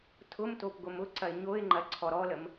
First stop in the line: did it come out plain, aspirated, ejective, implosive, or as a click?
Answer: aspirated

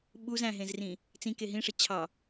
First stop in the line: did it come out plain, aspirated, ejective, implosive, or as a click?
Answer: implosive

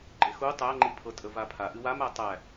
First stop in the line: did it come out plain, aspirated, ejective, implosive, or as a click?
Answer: click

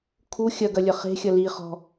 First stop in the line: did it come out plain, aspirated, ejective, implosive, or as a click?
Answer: aspirated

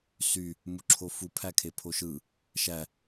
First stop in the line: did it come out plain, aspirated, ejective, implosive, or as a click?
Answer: click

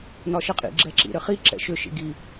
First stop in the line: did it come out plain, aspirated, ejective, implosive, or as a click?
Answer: ejective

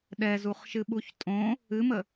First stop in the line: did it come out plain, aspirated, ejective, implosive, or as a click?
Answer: implosive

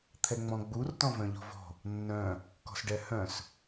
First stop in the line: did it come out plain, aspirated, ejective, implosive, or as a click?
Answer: aspirated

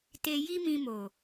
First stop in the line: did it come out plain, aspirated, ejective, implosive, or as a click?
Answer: plain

